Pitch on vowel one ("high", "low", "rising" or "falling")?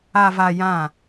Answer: low